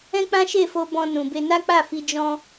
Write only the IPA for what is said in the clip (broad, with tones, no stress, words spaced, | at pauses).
ɛ̃˦k͡pã˦ʃe˦˨fo˧ bɔ̃˧nũ˨be˧ na˦k͡pa˦˨fi˧ d͡ʒɔ̃˦